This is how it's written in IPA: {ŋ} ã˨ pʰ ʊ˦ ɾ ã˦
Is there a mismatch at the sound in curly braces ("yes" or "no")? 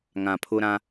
no